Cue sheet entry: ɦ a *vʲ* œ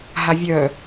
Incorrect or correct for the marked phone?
correct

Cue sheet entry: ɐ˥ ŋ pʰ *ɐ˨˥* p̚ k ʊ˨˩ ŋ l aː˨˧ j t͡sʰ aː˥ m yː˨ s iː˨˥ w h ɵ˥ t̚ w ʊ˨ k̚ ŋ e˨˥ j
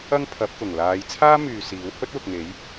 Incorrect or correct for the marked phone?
correct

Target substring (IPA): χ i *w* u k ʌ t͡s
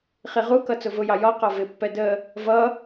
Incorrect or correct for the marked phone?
incorrect: ʁ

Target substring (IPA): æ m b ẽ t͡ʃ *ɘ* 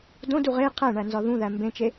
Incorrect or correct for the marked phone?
incorrect: e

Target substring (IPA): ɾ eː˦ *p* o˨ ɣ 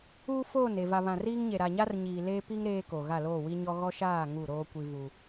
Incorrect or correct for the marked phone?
incorrect: k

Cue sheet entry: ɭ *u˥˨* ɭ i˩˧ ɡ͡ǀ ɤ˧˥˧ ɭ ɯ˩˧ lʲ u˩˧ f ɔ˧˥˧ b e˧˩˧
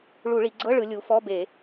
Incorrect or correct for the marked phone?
incorrect: u˧˩˧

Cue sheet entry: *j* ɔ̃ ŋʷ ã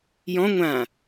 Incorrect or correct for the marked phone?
correct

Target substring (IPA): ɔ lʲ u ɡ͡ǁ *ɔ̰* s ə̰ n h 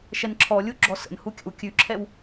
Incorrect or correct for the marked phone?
incorrect: ɔ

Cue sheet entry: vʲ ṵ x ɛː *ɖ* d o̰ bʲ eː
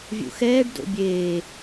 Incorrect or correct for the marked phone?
correct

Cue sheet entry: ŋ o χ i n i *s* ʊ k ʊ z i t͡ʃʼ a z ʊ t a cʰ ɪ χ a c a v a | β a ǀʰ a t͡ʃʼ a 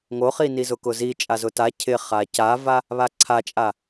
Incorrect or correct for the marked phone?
incorrect: z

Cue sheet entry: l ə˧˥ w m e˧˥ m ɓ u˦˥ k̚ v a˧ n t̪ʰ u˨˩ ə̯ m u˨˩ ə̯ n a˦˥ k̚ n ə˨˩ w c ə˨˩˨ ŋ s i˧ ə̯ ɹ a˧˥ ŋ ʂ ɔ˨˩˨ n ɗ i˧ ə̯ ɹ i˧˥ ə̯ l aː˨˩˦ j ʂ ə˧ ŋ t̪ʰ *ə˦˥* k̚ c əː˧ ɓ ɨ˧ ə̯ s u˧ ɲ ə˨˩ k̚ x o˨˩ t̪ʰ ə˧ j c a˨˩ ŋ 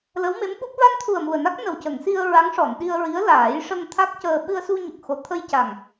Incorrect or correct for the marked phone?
incorrect: a˦˥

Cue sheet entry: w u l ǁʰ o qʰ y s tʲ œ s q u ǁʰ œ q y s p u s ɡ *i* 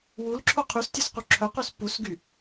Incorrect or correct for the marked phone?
incorrect: y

